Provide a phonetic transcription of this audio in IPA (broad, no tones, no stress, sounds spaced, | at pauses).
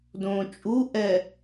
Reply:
d õː t͡ʃʼ u ʔ ɛ